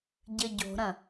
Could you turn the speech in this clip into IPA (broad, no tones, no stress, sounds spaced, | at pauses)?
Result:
ɟ ɘ ɟ o̤ ɾ ɐ̃